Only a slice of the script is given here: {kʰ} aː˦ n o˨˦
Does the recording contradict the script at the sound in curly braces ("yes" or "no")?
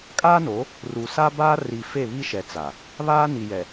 yes